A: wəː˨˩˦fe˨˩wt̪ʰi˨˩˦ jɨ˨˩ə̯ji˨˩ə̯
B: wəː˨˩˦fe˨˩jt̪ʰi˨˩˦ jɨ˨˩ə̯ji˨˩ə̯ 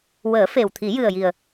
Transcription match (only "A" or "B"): A